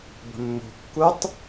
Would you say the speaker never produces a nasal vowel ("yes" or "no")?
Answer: yes